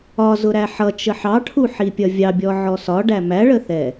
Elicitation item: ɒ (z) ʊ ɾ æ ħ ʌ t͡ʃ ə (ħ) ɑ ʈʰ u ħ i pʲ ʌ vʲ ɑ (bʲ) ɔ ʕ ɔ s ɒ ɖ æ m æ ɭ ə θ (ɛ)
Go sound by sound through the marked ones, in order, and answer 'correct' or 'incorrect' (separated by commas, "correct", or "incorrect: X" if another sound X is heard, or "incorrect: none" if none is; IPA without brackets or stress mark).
correct, correct, correct, correct